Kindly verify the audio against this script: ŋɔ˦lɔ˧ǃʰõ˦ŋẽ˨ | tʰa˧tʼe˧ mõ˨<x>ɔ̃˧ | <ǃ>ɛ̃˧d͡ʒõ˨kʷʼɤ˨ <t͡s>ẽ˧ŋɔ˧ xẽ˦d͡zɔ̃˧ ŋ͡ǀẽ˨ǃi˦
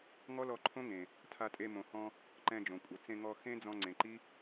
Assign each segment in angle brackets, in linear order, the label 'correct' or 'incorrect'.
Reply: incorrect, correct, correct

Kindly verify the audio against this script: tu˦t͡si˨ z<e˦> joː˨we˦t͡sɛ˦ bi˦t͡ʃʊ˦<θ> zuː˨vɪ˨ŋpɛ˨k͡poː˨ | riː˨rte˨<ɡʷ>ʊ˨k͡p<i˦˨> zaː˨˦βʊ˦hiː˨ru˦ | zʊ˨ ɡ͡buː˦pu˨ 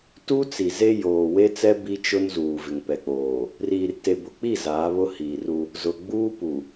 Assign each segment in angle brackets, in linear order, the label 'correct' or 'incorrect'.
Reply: correct, incorrect, incorrect, correct

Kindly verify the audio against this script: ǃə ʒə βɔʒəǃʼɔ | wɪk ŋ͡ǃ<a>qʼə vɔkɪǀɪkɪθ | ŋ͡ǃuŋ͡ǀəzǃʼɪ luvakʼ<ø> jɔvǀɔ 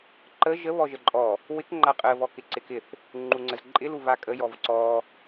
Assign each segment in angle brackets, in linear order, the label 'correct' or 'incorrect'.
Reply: correct, incorrect

